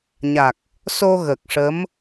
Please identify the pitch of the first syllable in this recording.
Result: low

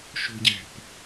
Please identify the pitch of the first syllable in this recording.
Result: high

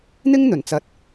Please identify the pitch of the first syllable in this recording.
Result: high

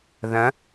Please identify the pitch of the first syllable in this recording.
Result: rising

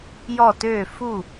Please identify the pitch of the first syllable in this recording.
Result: falling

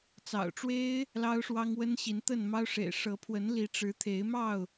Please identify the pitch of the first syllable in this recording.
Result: low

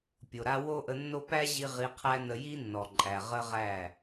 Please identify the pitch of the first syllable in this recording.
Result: low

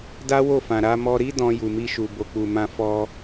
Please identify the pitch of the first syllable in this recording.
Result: high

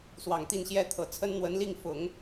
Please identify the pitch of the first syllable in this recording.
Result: low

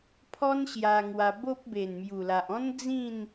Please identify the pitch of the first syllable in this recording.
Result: high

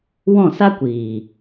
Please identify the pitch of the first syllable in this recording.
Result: falling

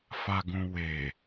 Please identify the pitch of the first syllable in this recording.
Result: low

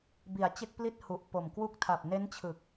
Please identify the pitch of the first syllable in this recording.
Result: low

